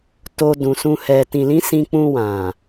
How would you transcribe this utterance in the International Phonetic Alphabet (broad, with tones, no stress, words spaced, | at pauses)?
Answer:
to˧dũ˨sũ˧ hɛ˨ tĩ˨lĩ˨˦ sĩ˧k͡pũ˧wã˨